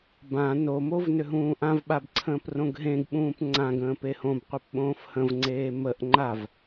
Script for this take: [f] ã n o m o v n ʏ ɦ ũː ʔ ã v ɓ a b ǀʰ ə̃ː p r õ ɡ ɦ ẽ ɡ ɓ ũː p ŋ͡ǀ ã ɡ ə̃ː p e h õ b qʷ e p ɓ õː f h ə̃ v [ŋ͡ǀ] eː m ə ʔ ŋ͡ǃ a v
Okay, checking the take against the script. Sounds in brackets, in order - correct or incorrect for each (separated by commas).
incorrect, correct